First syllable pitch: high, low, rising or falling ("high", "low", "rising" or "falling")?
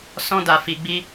high